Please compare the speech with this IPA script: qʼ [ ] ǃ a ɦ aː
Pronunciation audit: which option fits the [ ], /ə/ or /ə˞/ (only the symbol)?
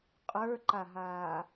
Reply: ə˞